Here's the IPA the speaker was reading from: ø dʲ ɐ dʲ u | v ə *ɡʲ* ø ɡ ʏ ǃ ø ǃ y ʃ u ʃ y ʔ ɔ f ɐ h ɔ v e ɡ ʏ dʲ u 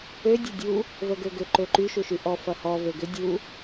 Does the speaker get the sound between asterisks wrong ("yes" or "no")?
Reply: yes